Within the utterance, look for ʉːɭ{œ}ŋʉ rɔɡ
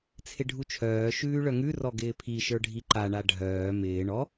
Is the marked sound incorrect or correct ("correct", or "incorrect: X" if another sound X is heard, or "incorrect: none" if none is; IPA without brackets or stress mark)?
correct